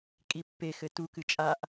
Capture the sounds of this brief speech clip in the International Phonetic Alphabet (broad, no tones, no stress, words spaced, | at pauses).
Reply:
kʼipːe xɘtu kɨt͡ʃʼaʔ